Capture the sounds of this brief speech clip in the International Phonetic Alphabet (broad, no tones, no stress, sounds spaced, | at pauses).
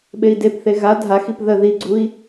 ɓ e i̯ d e p θ e ɣ a dʱ a x i p ð ə ð i ɡ͡ǀ u i̯